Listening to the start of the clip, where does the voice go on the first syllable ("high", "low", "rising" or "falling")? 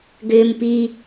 high